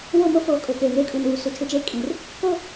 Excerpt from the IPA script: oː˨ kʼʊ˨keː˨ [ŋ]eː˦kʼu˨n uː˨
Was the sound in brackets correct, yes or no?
yes